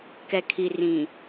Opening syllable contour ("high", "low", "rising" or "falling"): low